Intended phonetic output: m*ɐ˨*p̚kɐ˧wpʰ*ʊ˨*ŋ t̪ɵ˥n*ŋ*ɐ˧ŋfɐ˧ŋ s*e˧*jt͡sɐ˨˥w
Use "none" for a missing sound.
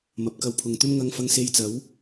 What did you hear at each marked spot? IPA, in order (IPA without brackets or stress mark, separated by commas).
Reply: ɐ˨, ʊ˨, ŋ, e˧